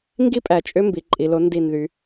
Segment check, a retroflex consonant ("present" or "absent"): absent